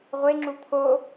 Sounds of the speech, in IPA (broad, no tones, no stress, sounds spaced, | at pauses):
ʁʷ e ŋ͡ǁ u t̪ʰ o